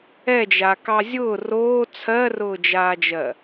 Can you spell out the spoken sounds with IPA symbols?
ɛ d͡ʒ a k ɑ zʲ ʊː r oː t͡sʰ ɜ r ʊː d͡ʒ aː d͡ʒ ɜ

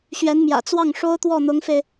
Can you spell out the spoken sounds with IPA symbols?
ɕ ɥ ɛ˧˥ n m j ä̰˨˩ t͡s w ɑ˥˩ ŋ ʂ o˥ ʊ̯ t̪ w ɔ˥˩ n̪ ʊ˧˥ ŋ f e˧ ɪ̯

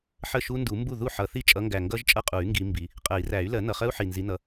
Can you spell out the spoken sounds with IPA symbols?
ħ ə˥˩ ʃ u˦˥ n d u˨˩˦ m b u˥˩ ð u˥˩ ħ ʌ˨˩˦ θ i˥˩ t͡ʃʼ ʌ˨˦ ŋ ɡ æ˨˩ ŋ ɡ ʌ˦˥ ʒ t͡ʃʼ ʌ˥˩ qʼ u˨˩˦ y̯ ŋ ɡ i˨˦ m b i˨˦ | qʼ ɜ˨˩˦ i̯ r æ˨˩˦ y̯ l ɜ˨˩˦ n ʌ˨˩ χ ɜ˦˥ u̯ ħ i˨˩ n z i˨˦ n ʌ˨˦

